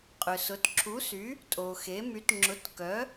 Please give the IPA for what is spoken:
qʼ ʏ˨ s ʊ˨˥ t ǁʰ u˨˥ s y˨˥ | tʼ o˨ x e˨˥ m y˨˥ t ŋ͡ǁ ʊ˨˥ t k œ˨˥

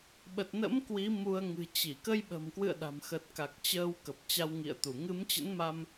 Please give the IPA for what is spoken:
ɓ ə˨˩ t̚ n ə̰˧˥ m k w i˨˦ m u˧ ə̯ ŋ ɨ̤˨˩ t͡ɕ i˧˩ k ə˧ j ɓ ə̤˨˩ m k w ɨ̰˧˨ ə̯ ɗ a̤˨˩ m x ə˨˩ t̚ k a˨˩ k̚ t͡ɕ əː˧ w k ə˨˩ p̚ t͡ɕ a˧ w ŋ ḭ˧˨ ə̯ t̪ u˧˩ ŋ ɨ˨˦ m t͡ɕ ə̰˧˥ n m a˧ m

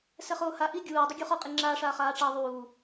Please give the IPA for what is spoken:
s ɛ χ oː h a ʔ i ɡʲ uː dˤ u ɡʲ u χ ɔ qʼ i ŋ͡ǁ aː ʂ aː χ aː ʈ͡ʂ a ðˤ uː

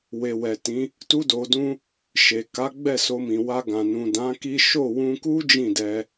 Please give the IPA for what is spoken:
w e˨ w ɛ˨ t ĩ˨˦ | t u˦ d o˧ d ũ˦ | ʃ e˨ k a˨˦ ɡ͡b ɛ˦˨ s o˧ m ĩ˨ w a˧ ɡ ã˨ n ũ˨ d ã˨˦ k i˦ ʃ o˦˨ w ũ˧ k u˦ d͡ʒ ĩ˦˨ d ɛ˧

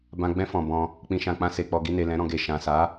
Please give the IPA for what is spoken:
b ã˨ ɡ͡b ɛ̃˧ f ɔ̃˨ b ɔ̃˧ | k͡p ĩ˨ ʃ ã˨ k͡p ã˧ s e˨ k͡p ɔ˨ ɡ i˧ n e˨ l ɛ̃˨˦ ɾ ɔ̃˧ ɡ e˨ ʃ ã˨ s a˨˦

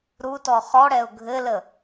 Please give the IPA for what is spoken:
ɾ u t ɔ χ ɔ ɽ ɛ ʊ̯ ɡʱ ɘ l ə

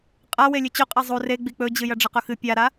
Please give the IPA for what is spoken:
qʼ a w e lʲ ɨ t͡ɕ ɵ qʼ a zˤ u r e ɡ͡b i k͡p ɵ d͡ʑ ɨ j ɐ ɖ͡ʐ ɐ q ɵ x ɨ pʲ a ɾ a

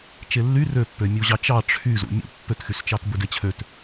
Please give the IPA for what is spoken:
t͡ʃ e lː y r ø pː ø mʲ u ʑ ɑ t͡ʃ ɑ ʈ͡ʂʰ y z ṵ mʲ ṵ pː ø t x y s t͡ʃ ɑ t b ɵ d e t͡ɕʰ ø t

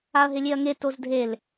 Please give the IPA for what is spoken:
a ɐ̯ ɦ ɪ lʲ e ɐ̯ ŋ e t o z dʱ e l

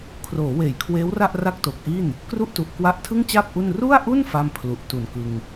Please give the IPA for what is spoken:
kʰ r oː˩˦ w eː˩˦ j kʰ w eː˦˥ w r a˥˩ ʔ r a˥˩ k̚ t o˨˩ k̚ ʔ i˥˩ n | k r u˥˩ ʔ t u˨˩ ʔ k w a˦˥ ʔ tʰ ɯ˥˩ ŋ t͡ɕ aː˥˩ p̚ ʔ u˥˩ n r u˥˩ a̯ ʔ u˥˩ n f a˥˩ m pʰ l u˨˩ ʔ t u˨˩ n k ɯ˧ ŋ

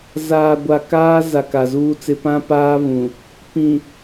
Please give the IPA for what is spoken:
z aː˨ ɡʷ a˨ k aː˦ z a˨ k a˨ z uː˦ t͡s ɪ˦ p ã˦ p aː˦ β ũ˨ | p ĩ˨

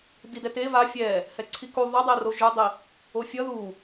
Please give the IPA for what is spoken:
d i d ɛ t e v a fʲ ɛ | h ɛ ǀʰ i k u ðˤ ʌ dˤ e r o ʒ ɯ dˤ i | o fʲ ʌ ð u

